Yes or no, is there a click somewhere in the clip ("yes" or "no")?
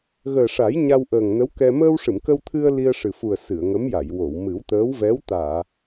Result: no